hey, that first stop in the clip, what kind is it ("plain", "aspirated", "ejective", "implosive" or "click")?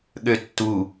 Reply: implosive